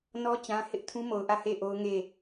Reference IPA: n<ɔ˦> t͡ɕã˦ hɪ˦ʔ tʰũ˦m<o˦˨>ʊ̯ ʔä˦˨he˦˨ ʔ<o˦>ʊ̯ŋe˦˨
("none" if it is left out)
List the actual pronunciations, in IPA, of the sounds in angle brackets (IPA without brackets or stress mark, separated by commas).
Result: ɔ˦, o˨, o˦